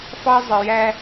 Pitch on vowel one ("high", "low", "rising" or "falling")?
high